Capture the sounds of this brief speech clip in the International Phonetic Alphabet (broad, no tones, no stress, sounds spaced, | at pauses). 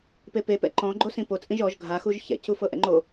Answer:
p e p e p ɛ̰ ǃ ɔ̃ ɡ͡ǃ o s ĩ p o t͡sʼ ĩ ʒ ɔ ʒ ɡʱ a x u ʒ ç ɛ̰ c u f ɤ ʔ ɛ̰ ŋ͡ǃ o